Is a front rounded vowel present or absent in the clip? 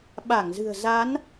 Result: absent